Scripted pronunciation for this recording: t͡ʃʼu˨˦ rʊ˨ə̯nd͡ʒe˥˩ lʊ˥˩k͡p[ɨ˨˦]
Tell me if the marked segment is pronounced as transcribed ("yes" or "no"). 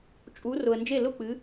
yes